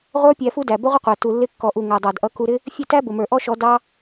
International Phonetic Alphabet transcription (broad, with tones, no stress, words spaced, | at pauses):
ʁʷə˞˦ pʲæ˧fu˦dæ˨ bə˦ʁʷə˦qʷæ˨ tu˨lːɪ˧kːɔ˨ʔu˨ ŋæ˨dˤɑ˨dʔʌ˧ ku˧ɾɪ˦ | fʲə˦˨tæ˦bʊ˨mə˞˨ ʔɔ˦ʃɔ˧ dɑ˦